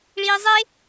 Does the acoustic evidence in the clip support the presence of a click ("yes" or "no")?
no